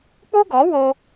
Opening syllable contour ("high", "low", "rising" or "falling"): high